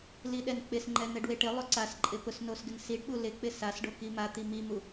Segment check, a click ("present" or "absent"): present